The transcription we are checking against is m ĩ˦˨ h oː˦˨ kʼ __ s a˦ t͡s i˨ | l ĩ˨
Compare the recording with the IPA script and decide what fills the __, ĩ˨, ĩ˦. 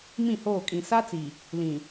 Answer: ĩ˨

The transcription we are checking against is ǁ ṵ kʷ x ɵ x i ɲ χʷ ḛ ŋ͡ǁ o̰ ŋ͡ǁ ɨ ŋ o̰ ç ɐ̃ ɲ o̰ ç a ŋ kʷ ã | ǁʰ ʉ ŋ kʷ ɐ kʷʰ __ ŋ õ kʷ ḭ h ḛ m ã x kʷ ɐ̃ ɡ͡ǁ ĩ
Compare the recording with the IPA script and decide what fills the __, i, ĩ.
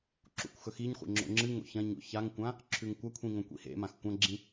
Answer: ĩ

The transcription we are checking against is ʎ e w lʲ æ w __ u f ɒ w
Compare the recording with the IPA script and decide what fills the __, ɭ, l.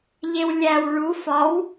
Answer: ɭ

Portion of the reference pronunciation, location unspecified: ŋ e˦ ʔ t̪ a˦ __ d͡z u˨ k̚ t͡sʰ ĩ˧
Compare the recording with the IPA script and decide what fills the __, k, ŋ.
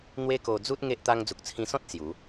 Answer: ŋ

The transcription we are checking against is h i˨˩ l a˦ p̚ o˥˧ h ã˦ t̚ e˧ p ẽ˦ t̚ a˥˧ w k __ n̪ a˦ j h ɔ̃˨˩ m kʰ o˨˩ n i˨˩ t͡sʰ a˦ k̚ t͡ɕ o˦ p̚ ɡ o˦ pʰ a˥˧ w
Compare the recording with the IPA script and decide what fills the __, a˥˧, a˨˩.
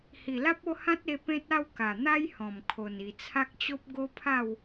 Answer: a˨˩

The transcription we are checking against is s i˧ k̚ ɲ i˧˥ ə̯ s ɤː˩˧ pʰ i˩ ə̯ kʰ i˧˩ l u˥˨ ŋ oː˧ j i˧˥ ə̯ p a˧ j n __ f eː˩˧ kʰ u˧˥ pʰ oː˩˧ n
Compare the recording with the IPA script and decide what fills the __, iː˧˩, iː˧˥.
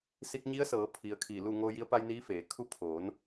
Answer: iː˧˥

